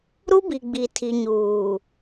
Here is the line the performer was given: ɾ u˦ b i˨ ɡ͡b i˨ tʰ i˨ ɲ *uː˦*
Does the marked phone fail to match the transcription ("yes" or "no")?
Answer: yes